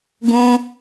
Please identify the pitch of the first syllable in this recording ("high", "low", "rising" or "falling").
high